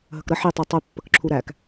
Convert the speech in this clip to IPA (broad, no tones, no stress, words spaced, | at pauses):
ɦəkɾə ħitˤi tˤʉpːəkǁʰu ɾæk